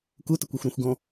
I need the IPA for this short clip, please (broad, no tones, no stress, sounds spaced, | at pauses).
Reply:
k u t ɘ kʷ u xʷ ɾ ɔ̃ xʷ ɡ ɔ̃